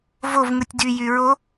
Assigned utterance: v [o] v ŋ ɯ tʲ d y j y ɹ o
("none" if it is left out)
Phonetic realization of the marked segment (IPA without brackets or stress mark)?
o